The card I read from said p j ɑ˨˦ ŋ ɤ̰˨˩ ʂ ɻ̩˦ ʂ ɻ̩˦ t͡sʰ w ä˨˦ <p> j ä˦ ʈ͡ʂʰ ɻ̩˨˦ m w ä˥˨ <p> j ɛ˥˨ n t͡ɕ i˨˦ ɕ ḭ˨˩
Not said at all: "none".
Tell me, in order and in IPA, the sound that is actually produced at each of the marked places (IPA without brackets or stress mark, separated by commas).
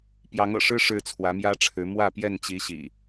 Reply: m, p